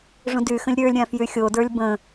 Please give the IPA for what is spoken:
ʐũdyxə̃lʲ ɾʲə˞lʲ ɾʲãfjyxʲodə˞lʲ bə̃

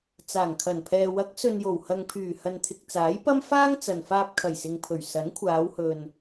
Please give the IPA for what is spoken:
t͡saː˨˩ŋkʰɐ˨˩npʰɛː˨ wɐ˨˥k̚sɵ˨njo˨˩whɐ˨ŋ pʰyː˨˩ hɐ˨nt̪ʰɪ˨k̚t͡saː˨˥jpɐ˥m faː˥ŋt͡sɐ˨n faː˧p̚kʰɐ˨˩jsɪ˨ŋpʰɵ˨˩ɥ sɐ˨˥nkʷʰaː˨˧whɵ˨n

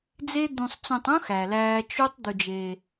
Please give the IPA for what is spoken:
d͡ze˦d̪ũ˧sˤ t͡sõ˧tˤõ˦ xæ˧læː˦ t͡ʃu˦tˤ d̪u˧d͡ʒeː˧

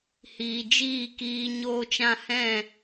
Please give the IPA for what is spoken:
hiː˨d͡ʒiː˦˨kiː˧ ɲoː˧t͡ʃã˧ hɛ̃˦˨

